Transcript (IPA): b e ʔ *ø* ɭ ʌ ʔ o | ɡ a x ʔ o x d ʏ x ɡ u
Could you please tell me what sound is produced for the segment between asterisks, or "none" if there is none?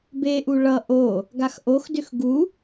u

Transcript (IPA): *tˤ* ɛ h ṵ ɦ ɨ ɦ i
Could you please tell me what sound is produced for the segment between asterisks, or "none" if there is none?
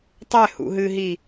tˤ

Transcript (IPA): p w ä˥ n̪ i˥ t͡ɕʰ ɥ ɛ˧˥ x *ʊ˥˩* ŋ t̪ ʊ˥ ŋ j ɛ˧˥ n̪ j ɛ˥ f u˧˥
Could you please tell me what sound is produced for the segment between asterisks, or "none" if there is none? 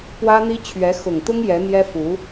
ʊ˨˩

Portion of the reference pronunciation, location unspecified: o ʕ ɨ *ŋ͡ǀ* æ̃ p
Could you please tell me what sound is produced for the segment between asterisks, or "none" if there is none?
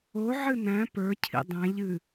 n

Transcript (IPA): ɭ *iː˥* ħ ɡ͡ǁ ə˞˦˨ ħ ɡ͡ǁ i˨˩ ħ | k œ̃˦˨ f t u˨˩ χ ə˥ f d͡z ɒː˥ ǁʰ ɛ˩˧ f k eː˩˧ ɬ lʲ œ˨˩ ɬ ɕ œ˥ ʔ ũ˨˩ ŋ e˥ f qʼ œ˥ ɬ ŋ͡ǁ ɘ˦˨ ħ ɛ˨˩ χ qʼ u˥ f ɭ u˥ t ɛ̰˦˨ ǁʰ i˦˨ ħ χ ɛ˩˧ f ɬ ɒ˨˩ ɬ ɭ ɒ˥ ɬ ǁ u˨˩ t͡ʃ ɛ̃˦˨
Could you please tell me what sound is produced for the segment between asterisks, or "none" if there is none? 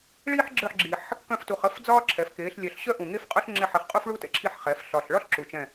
iː˥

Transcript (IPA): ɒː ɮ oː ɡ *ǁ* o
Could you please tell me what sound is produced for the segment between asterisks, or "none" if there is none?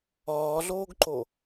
ǃ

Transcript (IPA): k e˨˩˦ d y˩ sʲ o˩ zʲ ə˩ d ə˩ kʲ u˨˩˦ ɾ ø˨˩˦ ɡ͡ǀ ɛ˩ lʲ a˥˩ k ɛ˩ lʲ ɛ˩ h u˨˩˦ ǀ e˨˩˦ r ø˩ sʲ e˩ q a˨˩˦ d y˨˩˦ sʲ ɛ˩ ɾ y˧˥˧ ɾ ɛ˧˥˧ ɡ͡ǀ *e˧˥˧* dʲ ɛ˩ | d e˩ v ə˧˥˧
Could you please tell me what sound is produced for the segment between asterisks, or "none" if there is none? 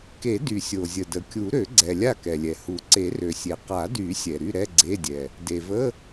e˧˥˧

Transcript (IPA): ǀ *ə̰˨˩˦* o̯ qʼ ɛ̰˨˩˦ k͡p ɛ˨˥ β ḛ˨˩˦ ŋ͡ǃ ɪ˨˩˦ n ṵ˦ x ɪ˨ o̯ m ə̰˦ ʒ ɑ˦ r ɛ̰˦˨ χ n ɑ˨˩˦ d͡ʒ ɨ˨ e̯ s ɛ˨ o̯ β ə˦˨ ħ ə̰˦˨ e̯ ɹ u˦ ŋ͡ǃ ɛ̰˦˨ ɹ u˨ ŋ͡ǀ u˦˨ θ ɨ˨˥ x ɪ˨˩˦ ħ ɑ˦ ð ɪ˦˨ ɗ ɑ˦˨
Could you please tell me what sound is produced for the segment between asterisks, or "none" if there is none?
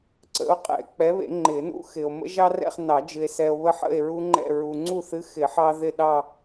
ə̰˨˥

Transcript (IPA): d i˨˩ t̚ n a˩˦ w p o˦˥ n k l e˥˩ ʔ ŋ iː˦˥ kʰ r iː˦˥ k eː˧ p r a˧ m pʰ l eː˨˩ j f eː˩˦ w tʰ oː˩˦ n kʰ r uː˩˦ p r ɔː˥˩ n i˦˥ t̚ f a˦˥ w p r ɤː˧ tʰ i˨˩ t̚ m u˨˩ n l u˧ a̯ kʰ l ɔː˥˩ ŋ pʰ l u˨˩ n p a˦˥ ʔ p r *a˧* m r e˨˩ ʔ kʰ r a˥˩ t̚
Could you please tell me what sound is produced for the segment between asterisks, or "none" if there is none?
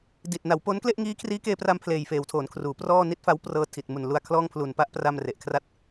a˧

